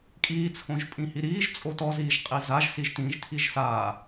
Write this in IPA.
kʼ iː t͡sʰ õ ʒ pʼ ĩ h i ɾ iː ʒ t͡sʼ o t ɔ z iː ʒ qʼ i z a ʒ s i ʒ t ĩ ʒ tʰ i ʒ s aː

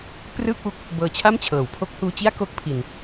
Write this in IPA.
p r ɯː˥˩ k̚ w u˦˥ k̚ | b ɤː˧ t͡ɕʰ a˥˩ m t͡ɕʰ ɤː˩˦ w pʰ o˦˥ k̚ h uː˧ t͡ɕ i˥˩ a̯ k o˦˥ k̚ pʰ i˧ n

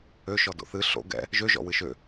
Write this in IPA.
ø ʃ ɔ d o̰ θ ɨ ɬ o̰ ɡ ɛ̰ | ʒ ø ʒ ɔ̰ w ɨ ʃ ø

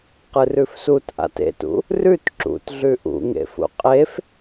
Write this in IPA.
q ɨ r ʉ f s u t ʔ a̰ t ḛ t ṵ | r ʉ t ǁ ṵ t ɮ ʉ ʔ ṵ ŋ ḛ f ṵ qʼ e f

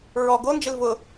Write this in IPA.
ɹ ɔ ɡ o n d͡ʒ ɪ l v ʊ

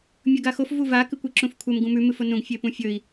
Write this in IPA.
mʲ ɵ ɡ a x o f v u v a k ɨ kʷ e ǁ ũ f kʷʰ ɐ m ɡ ũ m ʉ m ɨ f o n ũ ɡ fʲ e p ũ fʲ ɵ i̯

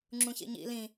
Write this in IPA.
ŋ͡ǁ ũ ç ḭ ɲ ḭ l ĩ

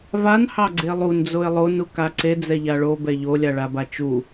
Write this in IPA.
v a n h ɑ ɡ͡ǀ e lˠ u n d͡z o ɪ̯ lˠ o n u k a ǀ e d͡z ɛ ʎ a ɭ o b ɛ ʎ o lʲ a ɭ a b a t͡ʃ u

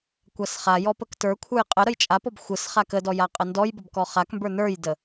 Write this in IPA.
kʷ a s χ a j ɔ p ə k t ə˞ kʷʰ ə˞ j qʼ ə ɾ ə j t͡ʃʼ a p ɔ b xʷ ə s χ a k ə d ɔ j a qʼ ə n d ɔ j b ə b k ɔ χ a k m b ə˞ n ə˞ j d ə

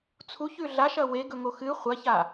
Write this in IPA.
t͡sʰ u ç ʉ ɮ a ʃ ɐ w e ɡ ɵ ŋ o x ɨ χʷ ɐ ç a

